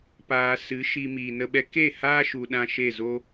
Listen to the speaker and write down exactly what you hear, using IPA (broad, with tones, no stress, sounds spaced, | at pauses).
p aː˧ s ɨ˨˦ ʃ i˧ m iː˨ n ə˧ ɓ ɛ˧ k e˦˨ h aː˦ ʃ u˧ ɗ ã˦ ʃ e˦˨ z o˦